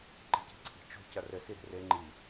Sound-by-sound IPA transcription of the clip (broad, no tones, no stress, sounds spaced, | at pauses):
ǃ i̤ c i̤ ǀʰ i̤ t͡ʃ ṳ c ɐ r ɘ s i ɾ e̤ r e ŋ͡ǃ i